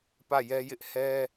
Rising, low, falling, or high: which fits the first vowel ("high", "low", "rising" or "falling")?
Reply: falling